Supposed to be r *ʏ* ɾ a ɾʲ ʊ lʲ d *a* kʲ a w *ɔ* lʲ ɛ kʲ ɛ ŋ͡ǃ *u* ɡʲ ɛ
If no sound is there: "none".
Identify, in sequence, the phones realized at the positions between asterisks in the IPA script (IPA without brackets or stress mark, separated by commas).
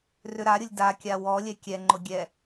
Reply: ʏ, a, ɔ, ʊ